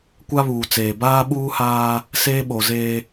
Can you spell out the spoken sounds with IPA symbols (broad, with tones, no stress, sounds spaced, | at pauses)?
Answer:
kʷ a˦ β uː˨ t͡s eː˨ b aː˦ ɓ uː˦ h aː˦ | s eː˦ ɓ o˨ z eː˦